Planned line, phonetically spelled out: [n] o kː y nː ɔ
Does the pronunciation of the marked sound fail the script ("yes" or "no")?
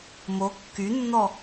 yes